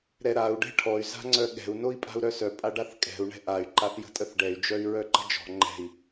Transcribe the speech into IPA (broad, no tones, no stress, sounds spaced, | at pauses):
ɾ ɛ ɾ a u̯ ɖ ɛ̤ ʈʰ ɔ y̯ z a̤ ŋ͡ǀ œ ɠ ɛ̤ u̯ n o i̯ pʼ a̤ u̯ ɾ œ s œ pʼ a ɖ a θ kʼ ɛ̤ u̯ ɳ ɛ̤ ʔ a y̯ ǃ a θ j ə̤ tʼ ə θ ɖ ɛ y̯ d͡ʒ œ y̯ ɹ œ ǃ ə̤ d͡ʒ ɔ̤ ŋ͡ǃ ɛ̤ i̯